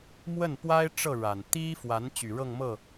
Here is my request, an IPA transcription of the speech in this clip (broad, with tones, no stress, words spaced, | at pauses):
mwə˥˩npwa˥ɪ̯ ʈ͡ʂɤ˥˩ ɻa˨˩n t̪i˥fwa˧˥n t͡ɕy˨˩ɻɤ˥˧ŋ mɤ˥˩